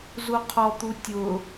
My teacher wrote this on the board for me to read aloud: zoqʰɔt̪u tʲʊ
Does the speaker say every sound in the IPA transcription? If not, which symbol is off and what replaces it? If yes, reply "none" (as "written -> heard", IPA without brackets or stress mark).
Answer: o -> u